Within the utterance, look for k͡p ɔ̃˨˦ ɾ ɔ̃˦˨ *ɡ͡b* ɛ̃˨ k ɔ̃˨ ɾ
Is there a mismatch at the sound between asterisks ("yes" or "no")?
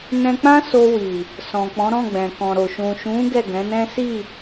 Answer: no